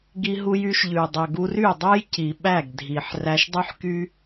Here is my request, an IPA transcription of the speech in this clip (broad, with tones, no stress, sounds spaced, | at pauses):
ɡ i˧ ɦ u˧ j y˧ ʃ ʎ ʉ˨ dˤ ɵ˨ ɡ u˧ r y˦˨ dˤ ɵ˦ j c i˨ ɓ æ˦˨ ɡ dʱ i˨ ħ r æ˧ ʃ dˤ y˦ ħ k y˦